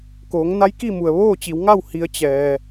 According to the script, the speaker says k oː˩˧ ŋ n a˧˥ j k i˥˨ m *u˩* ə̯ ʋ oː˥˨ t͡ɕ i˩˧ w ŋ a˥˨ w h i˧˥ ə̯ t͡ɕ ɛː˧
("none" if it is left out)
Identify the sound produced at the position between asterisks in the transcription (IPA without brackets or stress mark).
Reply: u˩